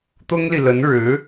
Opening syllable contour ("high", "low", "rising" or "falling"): high